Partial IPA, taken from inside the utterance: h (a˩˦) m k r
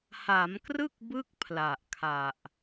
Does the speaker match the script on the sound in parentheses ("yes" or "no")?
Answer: yes